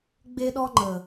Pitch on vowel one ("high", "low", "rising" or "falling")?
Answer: high